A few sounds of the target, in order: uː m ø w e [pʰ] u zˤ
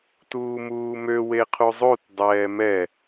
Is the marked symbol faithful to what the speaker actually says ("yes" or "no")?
no